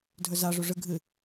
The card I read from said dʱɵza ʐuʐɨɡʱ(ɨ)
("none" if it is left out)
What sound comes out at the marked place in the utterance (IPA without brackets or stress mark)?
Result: ɨ